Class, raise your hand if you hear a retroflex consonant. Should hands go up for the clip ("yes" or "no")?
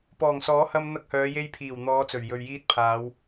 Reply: no